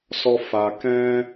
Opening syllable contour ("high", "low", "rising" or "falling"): high